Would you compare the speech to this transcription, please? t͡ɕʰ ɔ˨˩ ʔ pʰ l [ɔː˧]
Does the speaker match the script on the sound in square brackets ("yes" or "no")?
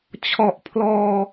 yes